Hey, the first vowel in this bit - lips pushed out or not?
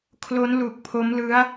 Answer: yes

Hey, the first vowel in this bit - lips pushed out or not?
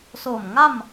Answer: yes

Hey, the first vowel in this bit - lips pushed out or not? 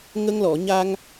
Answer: no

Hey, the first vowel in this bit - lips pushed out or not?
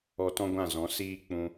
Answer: yes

